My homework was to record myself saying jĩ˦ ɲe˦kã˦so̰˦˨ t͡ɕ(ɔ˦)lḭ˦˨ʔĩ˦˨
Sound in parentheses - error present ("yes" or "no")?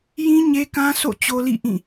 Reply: yes